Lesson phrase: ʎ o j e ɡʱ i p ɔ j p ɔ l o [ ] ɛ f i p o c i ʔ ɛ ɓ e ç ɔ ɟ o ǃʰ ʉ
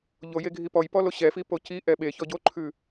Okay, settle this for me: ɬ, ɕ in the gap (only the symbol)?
ɕ